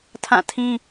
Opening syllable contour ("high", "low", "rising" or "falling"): falling